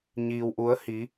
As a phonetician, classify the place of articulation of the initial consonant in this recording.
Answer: palatal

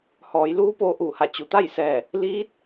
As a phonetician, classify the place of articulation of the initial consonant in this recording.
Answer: glottal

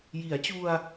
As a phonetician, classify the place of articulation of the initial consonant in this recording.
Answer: palatal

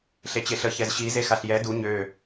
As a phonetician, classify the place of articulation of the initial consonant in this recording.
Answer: alveolar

